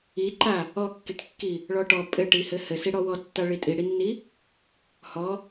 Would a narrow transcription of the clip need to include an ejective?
yes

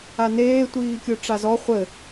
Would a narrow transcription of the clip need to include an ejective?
no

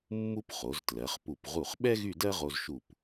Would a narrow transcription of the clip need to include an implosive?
yes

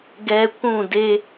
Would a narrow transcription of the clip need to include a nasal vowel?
yes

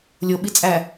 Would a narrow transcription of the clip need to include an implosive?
yes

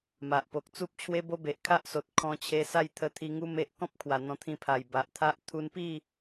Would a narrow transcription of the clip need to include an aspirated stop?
yes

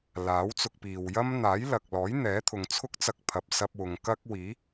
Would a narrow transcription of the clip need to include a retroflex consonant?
no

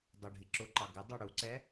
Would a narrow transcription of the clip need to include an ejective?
no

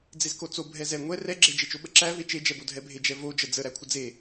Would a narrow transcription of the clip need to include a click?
yes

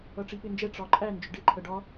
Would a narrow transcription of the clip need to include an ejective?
yes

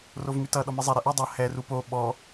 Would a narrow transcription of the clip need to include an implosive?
yes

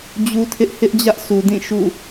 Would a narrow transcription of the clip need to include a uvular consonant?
no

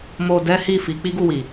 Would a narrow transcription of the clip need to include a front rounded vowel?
no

